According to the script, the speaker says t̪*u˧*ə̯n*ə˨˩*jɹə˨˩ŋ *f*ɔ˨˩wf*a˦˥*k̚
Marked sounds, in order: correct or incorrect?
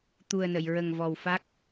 incorrect: u˨˩, incorrect: ə˨˩˨, incorrect: v, correct

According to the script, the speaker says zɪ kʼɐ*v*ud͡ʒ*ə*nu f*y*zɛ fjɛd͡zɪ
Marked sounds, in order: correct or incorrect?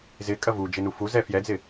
correct, incorrect: ɪ, incorrect: u

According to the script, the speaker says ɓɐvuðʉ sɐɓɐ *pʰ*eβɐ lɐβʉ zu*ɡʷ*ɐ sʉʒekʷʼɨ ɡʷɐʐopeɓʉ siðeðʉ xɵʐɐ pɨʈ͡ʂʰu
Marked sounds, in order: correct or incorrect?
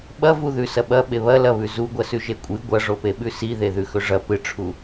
incorrect: ɓ, correct

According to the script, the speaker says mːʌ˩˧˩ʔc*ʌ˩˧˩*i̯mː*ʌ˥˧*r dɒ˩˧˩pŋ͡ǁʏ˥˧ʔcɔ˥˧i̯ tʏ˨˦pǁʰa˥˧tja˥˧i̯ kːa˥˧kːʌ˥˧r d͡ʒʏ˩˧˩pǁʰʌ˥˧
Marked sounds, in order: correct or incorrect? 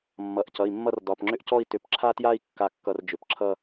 correct, correct

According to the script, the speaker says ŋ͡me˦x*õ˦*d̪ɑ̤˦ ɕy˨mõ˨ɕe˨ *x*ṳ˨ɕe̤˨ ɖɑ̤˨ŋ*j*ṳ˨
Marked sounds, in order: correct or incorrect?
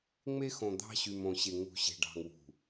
incorrect: õ˨, incorrect: ŋ, incorrect: w

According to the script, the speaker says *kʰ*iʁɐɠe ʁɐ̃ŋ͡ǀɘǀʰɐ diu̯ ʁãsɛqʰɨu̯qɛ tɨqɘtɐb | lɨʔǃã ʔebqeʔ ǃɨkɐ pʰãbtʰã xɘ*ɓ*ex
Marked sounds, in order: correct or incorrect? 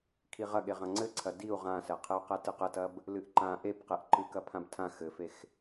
correct, incorrect: f

